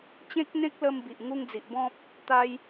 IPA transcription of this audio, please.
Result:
t͡ɕ ẽ˦ k̚ n̪ ẽ˦ k̚ l ə˧ m b i˨ ʔ ŋ u˧ ŋ d͡z i˨ ʔ b ɔ̃˦ p̚ | t̪ a˧ j

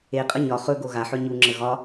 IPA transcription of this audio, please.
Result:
e qʼ ə ɲ ɒ χ ɵ ɡ o ɣ a ħ ɵ ɲ u ŋ͡ǁ ə ɣ ɒ

